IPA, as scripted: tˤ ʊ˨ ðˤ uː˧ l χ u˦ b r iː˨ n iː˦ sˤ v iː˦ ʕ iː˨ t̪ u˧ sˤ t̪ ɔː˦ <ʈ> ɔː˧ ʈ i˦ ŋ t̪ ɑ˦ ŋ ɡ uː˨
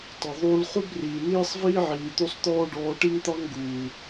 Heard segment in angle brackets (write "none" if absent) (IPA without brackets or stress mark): ɖ